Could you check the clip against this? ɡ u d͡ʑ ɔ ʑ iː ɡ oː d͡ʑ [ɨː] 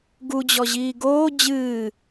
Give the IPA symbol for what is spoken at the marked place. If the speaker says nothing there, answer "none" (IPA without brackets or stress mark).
ɨː